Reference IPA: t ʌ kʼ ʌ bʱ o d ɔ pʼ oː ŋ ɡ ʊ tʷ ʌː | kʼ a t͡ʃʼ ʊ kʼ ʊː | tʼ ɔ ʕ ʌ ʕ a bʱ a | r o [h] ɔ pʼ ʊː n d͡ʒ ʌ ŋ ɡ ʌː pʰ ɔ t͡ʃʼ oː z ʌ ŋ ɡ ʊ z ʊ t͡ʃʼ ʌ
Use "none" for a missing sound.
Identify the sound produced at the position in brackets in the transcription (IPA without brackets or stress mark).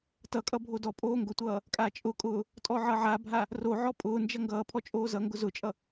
ʕ